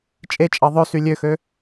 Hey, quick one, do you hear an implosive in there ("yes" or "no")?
no